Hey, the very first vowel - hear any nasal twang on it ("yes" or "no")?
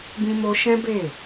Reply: yes